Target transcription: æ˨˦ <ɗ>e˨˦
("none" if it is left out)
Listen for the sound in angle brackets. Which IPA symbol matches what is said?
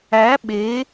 ɓ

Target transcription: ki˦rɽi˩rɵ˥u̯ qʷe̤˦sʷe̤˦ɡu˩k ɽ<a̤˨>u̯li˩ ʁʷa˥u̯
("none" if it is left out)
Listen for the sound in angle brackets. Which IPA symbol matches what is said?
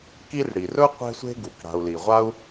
a̤˨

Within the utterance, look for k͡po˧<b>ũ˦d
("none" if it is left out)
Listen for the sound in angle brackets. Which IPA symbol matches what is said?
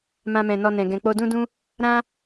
d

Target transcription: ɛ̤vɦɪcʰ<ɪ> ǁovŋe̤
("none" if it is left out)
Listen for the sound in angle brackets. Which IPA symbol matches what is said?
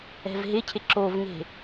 ɪ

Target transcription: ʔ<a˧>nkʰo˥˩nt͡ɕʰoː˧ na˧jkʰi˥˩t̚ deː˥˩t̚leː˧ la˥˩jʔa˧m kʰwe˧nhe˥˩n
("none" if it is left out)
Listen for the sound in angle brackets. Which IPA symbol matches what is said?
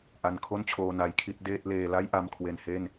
a˧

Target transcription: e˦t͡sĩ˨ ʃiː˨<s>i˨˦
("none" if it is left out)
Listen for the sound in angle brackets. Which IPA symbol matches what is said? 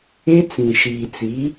t͡s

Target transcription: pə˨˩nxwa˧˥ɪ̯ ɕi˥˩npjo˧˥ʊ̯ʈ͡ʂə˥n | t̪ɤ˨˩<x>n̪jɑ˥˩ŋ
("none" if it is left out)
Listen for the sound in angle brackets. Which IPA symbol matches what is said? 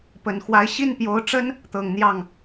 ŋ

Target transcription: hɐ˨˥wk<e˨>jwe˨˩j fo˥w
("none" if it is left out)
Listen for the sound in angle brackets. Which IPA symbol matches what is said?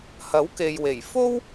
e˨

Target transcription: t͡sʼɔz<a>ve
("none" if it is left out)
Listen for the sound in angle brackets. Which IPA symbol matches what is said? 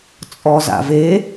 a̰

